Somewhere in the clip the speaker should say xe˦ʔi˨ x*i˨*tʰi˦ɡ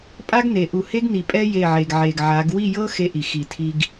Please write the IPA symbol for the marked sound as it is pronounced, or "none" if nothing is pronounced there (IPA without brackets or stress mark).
i˨